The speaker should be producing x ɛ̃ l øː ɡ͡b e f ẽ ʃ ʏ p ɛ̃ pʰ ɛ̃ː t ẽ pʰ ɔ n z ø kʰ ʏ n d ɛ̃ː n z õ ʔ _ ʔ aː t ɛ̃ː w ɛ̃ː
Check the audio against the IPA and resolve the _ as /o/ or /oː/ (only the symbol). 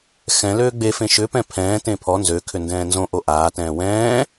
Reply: o